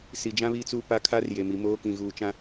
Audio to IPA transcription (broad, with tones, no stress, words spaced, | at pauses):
si˨d͡ʒã˦βi˦˨t͡su˦˨ pa˦kʰa˦r je˨mi˨moː˦ kĩ˨ɣuː˨t͡ʃã˦